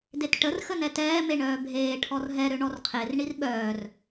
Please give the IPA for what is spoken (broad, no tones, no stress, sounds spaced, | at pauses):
d e t ʈ ə r x ə n ɛ t ɛː m e ɳ œː bʱ eː ʈʰ ɔ r ɦ ɛ ɾ ø ɳ ɔ r qʰ e r ɳ i r ɓ œː r